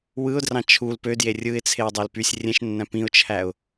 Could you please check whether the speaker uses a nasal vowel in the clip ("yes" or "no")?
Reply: yes